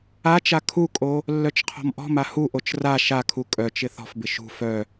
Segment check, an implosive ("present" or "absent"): absent